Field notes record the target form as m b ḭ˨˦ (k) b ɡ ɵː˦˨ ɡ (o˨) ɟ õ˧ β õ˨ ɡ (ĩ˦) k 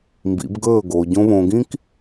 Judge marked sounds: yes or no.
no, yes, yes

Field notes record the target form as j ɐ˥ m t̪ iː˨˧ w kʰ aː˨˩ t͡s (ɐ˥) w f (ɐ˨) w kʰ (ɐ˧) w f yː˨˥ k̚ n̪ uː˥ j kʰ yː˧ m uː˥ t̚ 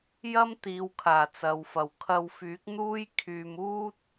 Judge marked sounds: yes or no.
no, yes, yes

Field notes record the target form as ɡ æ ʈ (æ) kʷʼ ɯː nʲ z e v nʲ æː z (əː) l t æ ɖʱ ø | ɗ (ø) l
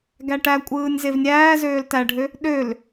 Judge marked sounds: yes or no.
yes, no, yes

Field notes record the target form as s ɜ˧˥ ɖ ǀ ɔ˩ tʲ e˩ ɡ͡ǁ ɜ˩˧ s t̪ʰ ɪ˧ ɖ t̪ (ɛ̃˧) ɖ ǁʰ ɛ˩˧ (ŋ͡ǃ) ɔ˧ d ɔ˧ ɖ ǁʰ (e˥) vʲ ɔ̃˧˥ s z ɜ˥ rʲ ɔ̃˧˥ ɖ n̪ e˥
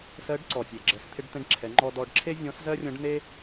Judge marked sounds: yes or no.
yes, yes, yes

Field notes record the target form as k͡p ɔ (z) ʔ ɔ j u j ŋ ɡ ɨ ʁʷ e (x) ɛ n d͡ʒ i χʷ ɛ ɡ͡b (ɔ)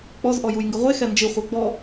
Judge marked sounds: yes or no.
yes, yes, yes

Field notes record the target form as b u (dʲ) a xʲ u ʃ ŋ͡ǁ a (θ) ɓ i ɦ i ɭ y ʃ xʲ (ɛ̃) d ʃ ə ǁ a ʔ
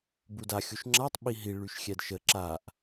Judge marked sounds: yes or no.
no, no, no

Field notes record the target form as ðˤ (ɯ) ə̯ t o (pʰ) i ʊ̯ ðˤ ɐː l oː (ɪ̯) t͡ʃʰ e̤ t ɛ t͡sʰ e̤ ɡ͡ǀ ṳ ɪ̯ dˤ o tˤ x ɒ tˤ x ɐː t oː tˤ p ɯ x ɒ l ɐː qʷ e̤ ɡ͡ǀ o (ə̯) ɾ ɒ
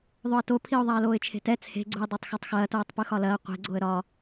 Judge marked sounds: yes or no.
no, yes, yes, yes

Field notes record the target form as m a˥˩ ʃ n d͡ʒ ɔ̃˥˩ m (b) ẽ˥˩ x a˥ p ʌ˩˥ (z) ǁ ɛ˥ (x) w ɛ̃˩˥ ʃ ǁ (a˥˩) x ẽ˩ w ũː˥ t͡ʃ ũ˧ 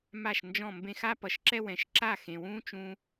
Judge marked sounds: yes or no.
yes, no, no, yes

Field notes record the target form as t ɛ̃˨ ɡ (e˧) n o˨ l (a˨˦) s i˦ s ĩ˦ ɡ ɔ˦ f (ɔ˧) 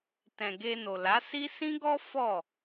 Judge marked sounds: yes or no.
yes, yes, no

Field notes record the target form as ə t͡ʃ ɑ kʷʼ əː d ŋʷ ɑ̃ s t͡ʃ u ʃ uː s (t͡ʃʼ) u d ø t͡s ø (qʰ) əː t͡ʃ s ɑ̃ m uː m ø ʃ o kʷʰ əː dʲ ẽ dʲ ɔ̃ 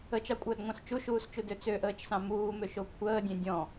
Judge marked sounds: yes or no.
no, no

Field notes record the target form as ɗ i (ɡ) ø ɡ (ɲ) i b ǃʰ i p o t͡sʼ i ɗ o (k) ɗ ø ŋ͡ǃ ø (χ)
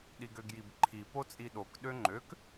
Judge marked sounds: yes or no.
yes, no, yes, no

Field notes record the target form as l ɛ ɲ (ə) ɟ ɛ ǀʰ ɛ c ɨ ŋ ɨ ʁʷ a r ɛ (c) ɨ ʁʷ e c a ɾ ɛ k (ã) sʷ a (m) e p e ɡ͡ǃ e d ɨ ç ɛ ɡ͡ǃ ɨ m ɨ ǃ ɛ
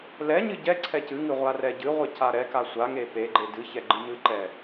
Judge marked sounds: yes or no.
no, no, no, no

